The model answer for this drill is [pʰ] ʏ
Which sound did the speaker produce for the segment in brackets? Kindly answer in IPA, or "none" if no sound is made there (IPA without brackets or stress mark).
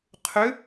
qʰ